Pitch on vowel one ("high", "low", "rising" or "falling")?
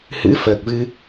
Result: rising